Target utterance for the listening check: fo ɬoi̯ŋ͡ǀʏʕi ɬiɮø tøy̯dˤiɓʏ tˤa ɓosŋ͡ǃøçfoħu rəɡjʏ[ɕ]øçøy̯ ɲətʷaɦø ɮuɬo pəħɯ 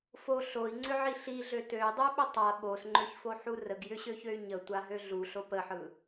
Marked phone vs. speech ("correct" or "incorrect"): correct